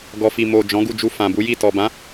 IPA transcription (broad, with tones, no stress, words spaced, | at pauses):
ɡɔ˨fi˨ mo˨ d͡ʒɔ̃˨˦ɡu˦˨d͡ʒu˧ fã˨bu˨˦ji˦˨ tɔ˨bã˨˦